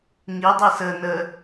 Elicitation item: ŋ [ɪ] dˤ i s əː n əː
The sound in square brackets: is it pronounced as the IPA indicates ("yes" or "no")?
no